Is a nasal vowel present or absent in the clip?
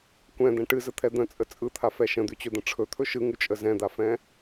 present